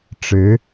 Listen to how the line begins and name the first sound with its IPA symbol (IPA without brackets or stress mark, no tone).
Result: ʈ͡ʂ